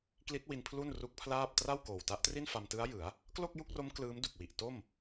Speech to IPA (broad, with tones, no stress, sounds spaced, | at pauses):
k l i˦˥ t̚ w i˧ n pʰ l u˥˩ n r u˦˥ k̚ pʰ l aː˥˩ p̚ t r a˥˩ w k oː˨˩ w t a˦˥ ʔ t r i˥˩ n f a˧ m t ɯ˦˥ a̯ j ɯ˩˦ a̯ | k l o˥˩ k̚ j u˥˩ k̚ r o˦˥ m k l ɯː˦˥ m d u˨˩ k̚ w i˨˩ ʔ t o˥˩ m